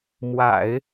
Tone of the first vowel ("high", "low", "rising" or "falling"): low